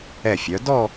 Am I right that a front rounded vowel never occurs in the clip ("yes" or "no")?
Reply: no